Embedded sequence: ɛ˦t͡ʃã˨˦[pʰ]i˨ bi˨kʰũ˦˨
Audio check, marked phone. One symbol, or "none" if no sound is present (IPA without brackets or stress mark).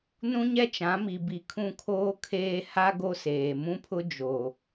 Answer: m